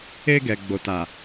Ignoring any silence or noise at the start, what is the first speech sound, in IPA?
e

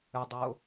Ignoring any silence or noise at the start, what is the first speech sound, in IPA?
ə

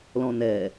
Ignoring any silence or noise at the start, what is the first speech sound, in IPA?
l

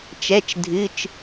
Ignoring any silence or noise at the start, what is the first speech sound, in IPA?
t͡ʃ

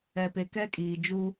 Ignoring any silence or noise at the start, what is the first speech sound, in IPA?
ɛ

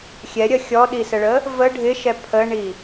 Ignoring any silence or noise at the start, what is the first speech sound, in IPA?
xʲ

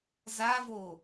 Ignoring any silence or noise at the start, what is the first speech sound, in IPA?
z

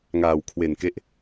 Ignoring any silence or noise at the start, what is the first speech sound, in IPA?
ŋ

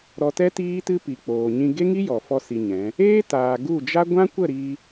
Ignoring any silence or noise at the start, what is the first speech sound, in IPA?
ɾ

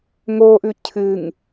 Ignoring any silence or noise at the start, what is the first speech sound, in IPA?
ŋ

